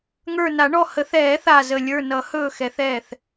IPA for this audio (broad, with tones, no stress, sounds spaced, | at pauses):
ŋ ə˞˧˩ n a˨˩˦ ɳ ɔ˧˩ h ə˨˩˦ θ ɛː˨˩˦ θ a˧˩ z ə˧˩ lʲ ə˞˧˩ n ʌ˨˩˦ h ɵː˧˩ x ɛ˨˩˦ θ ɛː˧˩ θ